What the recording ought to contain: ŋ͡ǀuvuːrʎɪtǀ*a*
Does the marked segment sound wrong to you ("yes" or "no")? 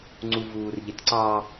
yes